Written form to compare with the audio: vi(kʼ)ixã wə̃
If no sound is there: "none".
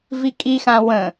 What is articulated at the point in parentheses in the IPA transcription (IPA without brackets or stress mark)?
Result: kʼ